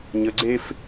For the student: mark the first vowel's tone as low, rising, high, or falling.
low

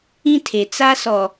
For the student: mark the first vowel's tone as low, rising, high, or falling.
high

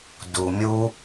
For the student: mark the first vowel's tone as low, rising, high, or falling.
low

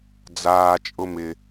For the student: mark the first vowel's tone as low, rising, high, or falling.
low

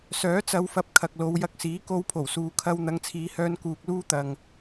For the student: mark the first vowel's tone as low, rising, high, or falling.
rising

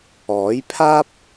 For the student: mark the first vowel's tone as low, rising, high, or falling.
rising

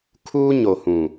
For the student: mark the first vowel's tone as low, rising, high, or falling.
high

